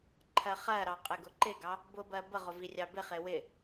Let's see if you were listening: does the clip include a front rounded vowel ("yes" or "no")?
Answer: no